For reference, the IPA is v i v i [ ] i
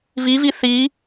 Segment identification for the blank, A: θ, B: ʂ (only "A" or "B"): A